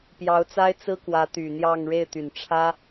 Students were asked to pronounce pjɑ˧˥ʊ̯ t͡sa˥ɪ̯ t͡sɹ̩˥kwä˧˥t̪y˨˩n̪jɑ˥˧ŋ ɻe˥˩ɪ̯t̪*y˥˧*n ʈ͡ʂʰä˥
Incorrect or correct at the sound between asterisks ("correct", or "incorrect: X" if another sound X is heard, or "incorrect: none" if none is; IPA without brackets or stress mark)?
incorrect: y˨˩